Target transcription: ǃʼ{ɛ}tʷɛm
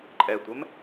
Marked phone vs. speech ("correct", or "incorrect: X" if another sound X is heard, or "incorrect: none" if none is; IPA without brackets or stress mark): correct